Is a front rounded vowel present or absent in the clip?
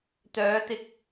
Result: present